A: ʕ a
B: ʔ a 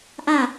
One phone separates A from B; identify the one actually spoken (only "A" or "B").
B